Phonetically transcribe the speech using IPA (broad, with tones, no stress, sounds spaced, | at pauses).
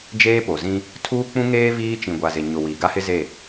d͡ʒ eː˦ p o˨ z ĩ˦ | tʰ uː˦ k͡p ũ˦ ŋ eː˦ v iː˦ t͡ʃ ĩ˨ ɡʷ a˨ z ɪ˨ ɲ ʊ˨ w i˨ ɡ a˦ h ɪ˦ z e˦˨